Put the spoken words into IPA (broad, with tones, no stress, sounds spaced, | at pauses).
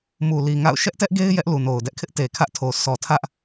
m u˨ l i˨ ŋ a̰˦˨ ʊ̯ ʃ ɛ˦ ʔ t ɛ˦ ʔ ɡ e˦ ɪ̯ j ɛ˦ ʔ l u˨ n o˨ ʊ̯ d ɛ˦ ʔ kʰ ɪ˦ ʔ t e˨ kʰ ä˦ ʔ tʰ o˨ sʰ ɔ˨ tʰ ä˦ ʔ